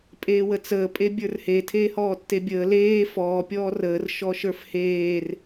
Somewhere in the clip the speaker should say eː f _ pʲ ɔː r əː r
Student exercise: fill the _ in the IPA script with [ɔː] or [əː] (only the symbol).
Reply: ɔː